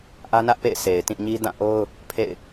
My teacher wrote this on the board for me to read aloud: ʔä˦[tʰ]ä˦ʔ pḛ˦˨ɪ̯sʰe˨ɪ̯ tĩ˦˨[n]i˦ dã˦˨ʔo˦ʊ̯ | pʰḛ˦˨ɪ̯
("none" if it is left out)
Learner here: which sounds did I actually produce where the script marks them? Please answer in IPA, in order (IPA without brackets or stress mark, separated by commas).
n, ɲ